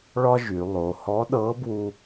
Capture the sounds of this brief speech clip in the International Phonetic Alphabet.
ɭ ɒ˥ ʒ y˩˧ lˠ o˩˧ h ɔ˧˥ ɗ ɤ˧˥ b w u˧

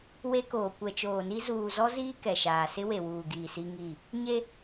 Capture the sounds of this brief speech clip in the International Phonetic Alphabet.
w e˦ k oː˨ kʷ ɛ˨ t͡ʃ oː˨ n i˦ z uː˨ z ɔ˦ z iː˦ k ɛ˨ ʃ aː˨ s ɪ˦ w e˨ w uː˨ ɡ iː˨ s i˦ ŋ i˦˨ | ɲ e˦

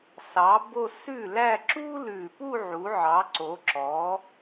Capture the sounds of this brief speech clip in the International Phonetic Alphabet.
s ɑ˩˥ b o˥˧ s ʉ˥˩ l æ˥˧ ǁ u˥ l ʉ˨˩ p u˥˧ ʕ u˩˥ ʕ ɑ˩˥ ǀ o˩˥ ǁ ɔ˩˥

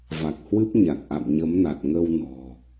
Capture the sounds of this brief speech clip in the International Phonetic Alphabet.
v a˨˩ k̚ h w ɨ˦˥ p̚ ɲ a˨˩ k̚ ʔ a̰˧˨ m ɲ ə˨˦ m n a˨˩ t̚ ŋ ə˧ w n ɔ̤˨˩

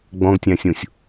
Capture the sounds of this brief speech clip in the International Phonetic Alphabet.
ɡ͡b ɔ̃ ɡ tʲ æ̃ sʲ ũ sʲ

